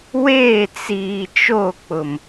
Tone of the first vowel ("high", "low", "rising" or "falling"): falling